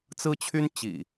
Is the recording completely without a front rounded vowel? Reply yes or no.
no